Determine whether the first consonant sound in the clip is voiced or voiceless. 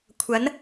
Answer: voiceless